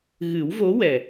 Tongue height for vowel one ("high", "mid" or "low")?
high